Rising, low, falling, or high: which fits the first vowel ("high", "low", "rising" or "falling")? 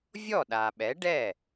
falling